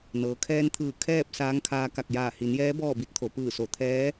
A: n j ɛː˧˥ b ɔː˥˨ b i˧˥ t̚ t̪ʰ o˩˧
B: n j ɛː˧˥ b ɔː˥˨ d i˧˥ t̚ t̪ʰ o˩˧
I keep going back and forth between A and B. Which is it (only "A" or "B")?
A